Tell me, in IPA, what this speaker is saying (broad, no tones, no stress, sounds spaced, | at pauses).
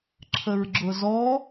ǁʰ ə ɹ ɡ͡ǁ ʊ z ɔ